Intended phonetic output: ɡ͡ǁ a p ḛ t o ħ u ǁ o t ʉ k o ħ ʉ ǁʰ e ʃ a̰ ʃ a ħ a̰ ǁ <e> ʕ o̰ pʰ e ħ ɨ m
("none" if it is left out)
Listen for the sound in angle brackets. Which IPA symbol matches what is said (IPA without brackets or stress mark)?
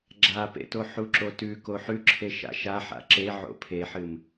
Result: e